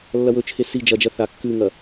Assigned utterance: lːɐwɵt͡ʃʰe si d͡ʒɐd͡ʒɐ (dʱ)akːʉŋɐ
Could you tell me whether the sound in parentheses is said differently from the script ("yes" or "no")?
yes